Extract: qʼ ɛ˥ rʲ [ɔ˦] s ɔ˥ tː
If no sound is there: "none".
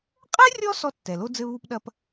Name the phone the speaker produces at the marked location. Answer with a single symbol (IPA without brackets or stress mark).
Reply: ɔ˦